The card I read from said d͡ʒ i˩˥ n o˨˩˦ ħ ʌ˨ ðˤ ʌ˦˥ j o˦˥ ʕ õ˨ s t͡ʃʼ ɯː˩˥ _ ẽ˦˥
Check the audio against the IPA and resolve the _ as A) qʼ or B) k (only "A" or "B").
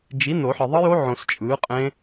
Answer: A